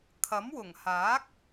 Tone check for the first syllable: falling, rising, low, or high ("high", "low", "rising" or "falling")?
rising